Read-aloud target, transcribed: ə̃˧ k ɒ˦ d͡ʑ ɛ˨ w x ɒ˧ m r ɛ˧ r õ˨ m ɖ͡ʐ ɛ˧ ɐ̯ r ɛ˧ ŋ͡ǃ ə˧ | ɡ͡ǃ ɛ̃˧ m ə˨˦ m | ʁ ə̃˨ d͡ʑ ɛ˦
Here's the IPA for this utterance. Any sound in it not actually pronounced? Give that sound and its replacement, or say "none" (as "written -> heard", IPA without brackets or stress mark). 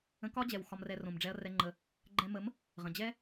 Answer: none